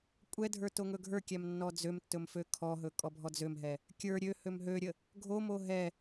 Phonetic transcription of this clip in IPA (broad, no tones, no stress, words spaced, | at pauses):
kʷʼɛdʱə˞ toŋɵɡʱə˞kʲæm nːɔd͡zømtːɵm føkʰɔɦɵ kʼɔbʱɔd͡zømɦɛ | kʲə˞ ɾʲø hømɦøɾʲə | ɡʱomo ɦɛ